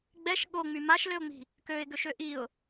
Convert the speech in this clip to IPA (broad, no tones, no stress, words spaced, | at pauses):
ɡ͡bɛʃ ɠoŋ͡my maʃløʊ̯ŋ͡mi̤ | køɪ̯ɡøʃø ʔiʊ̯